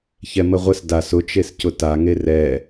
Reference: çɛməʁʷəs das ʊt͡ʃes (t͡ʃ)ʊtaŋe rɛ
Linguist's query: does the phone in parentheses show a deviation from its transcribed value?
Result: yes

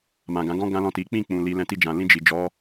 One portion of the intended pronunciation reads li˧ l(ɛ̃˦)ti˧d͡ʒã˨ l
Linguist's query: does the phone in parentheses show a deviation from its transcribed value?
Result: yes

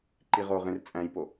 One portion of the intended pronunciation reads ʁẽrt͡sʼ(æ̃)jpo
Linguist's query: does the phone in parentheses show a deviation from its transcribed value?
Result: no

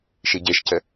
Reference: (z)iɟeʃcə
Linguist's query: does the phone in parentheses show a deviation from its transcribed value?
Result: yes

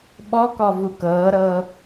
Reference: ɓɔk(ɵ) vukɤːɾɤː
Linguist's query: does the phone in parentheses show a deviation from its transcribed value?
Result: yes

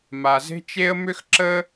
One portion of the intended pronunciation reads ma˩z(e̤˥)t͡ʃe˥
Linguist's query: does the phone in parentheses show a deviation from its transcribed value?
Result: no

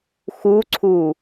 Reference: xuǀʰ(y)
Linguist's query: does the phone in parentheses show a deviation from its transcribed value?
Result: yes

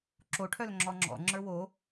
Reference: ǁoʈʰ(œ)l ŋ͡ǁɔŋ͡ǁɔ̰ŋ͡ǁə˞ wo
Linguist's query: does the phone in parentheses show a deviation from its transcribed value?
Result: no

